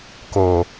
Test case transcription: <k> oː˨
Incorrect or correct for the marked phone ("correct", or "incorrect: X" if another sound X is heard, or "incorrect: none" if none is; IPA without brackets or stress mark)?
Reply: correct